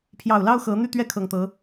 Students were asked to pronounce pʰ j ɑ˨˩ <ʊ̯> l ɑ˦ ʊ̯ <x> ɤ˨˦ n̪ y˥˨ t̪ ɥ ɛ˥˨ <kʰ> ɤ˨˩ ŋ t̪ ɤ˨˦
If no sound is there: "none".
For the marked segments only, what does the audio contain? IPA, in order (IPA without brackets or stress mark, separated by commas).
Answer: ʊ̯, x, kʰ